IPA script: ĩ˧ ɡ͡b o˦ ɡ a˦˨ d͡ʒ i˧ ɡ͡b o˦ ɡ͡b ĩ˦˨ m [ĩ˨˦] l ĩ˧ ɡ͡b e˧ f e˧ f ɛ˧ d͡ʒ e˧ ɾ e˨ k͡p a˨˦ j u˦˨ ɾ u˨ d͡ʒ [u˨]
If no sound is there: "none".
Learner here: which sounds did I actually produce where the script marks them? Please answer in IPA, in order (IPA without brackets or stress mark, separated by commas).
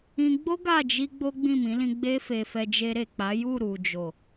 ĩ˨˦, o˨